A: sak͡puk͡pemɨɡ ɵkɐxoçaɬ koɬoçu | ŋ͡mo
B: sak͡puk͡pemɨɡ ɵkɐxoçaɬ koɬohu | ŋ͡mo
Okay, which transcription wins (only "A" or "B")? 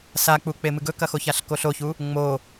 A